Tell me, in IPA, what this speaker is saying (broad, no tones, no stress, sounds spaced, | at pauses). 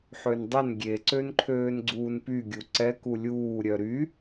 ħ ø n dˤ ɛ n ɡʲ e ǀ ø n ǃʰ øː n ɡ͡ǀ uː n p y ɡʲ u ǀ ɛ k u lʲ uː ɾʲ œ ɾ y